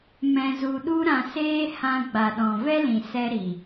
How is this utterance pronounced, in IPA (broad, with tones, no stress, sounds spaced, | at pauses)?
m ɛ̃˧ z u˧ ɗ u˦ ɾ ã˧ s eː˦ h ã˧ ɡ͡b a˨ ɗ ɔ̃˨ v ɛ˦ l ĩ˨ s ɛ˧ ɾ i˨